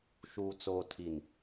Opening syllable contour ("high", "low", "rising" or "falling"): low